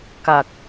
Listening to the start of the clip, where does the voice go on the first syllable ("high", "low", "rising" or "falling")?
low